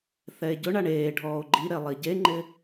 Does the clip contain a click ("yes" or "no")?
yes